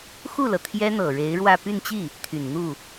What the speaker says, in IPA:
xu˥˩lɤ˩ t̪ʰjɛ˥n̪ɤ˨˩ɻe˧˥ɪ̯ ɻwä˥˧ py˥˧nt͡ɕi˥˩ | t̪ʰy˨˩nn̪u˥˩

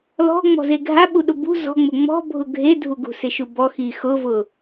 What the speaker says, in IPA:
lɔ̤ŋ͡mɔ̤ze ɡʱaɓuɗʊ bṳ zɔ̤ŋ͡mʊ ŋ͡mɔ̤bʱʊ ɡʱedʱuɡṳ sɪʃubɔ xixʊvʊ

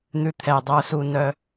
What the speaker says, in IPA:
n̪ʉ˨t̪ʰɛ˩dˤœ˨su˨ nœ˦

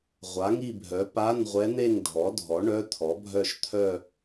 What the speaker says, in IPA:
ʁʷa˩˥ŋi˥˧bʱœ˩˥ pa˧˥˧nʁʷɛ˧˥n̪e˥˧ŋ dʱɔ˩˥dʱɔ˩˥ ɳœ˧˥˧t̪ʰɔ˩˥bʱœ˥˧ʃ t̪ʰœ˥˧

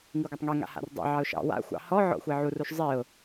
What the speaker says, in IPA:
ŋiɡʷatˤŋe ŋa̰ha̰rdˤḭ ʕɑʊ̯ʃɑ̰ wa̰ xʷɑ̰hɔʕɔ̰ xʷeʕuruʃ zˤiʊ̯

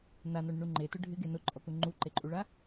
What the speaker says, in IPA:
nanɔɳɪɳu ŋ͡ǃetʊ ɖʱɪɡe nʊǃʼɔku ŋ͡ǃuǃeǃʼuɭa

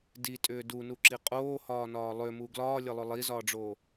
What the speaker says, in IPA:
ditʼʏː dunuǁi qʼoːhɒːnɒː lˠʏmu ɡlɒːlʲəlˠʏ lˠizɒːɖ͡ʐoː

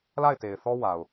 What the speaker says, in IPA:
la˦˨ɪ̯te˨ɪ̯θɔ˦ wa˨ʊ̯

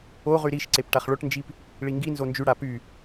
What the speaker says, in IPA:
oʁy ɾiʃ ǀepʈaχɭoʈnd͡ʒip | ɭiŋɡinzo nd͡ʒyɽa py

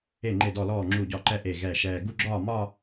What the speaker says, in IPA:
e˥˩ŋ͡ǃe˥˩dɔ˥˩lɔː˥˩ ŋ͡ǁu˥˩ɟɒ˥˩ǃɛ˥˧ ʔe˥˩ɣɛ˥˩ʃɛː˥˧ ɡu˥˩ɡ͡ǁɒː˥˩mɒ˥˧

